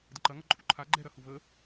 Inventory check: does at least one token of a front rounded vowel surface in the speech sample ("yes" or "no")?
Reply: no